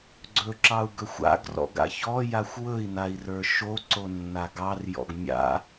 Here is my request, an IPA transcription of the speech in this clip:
ɡ͡ǀɵǁɑu̯ ɡɵxʷa̰ɡrɔ̰ɡ a̰çɔ jaxʷwɵi̯nai̯rə˞ ʃo ǀonːaɡɑrjɔ̰ɡ mʲa̰

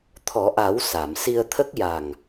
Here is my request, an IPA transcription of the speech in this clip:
t̪ʰɔ˨˩˦ʔa˨˩˦w sa˨˩˨msi˧ə̯t̪ʰə˦˥k̚ja˨˩ŋ

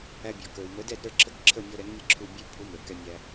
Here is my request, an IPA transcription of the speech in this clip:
æ˧bʲɔ˩kə˞˩w mə˩˥dɛ˥˩dɾə˞˥˩ ǁʰə˥˩kǁʰə˥˩mʲɔ˧ɾɛ˩˥ŋ mʲə˥ǁʰu˥˩bʲə˞˥ pʰu˩˥ mə˞˩ kɛ˧mʲæ˧

